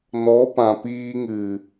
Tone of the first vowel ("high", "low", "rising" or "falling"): rising